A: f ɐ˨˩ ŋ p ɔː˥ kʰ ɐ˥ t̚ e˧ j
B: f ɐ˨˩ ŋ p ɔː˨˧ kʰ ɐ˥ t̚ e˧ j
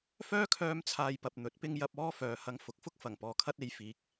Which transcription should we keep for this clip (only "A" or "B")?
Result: B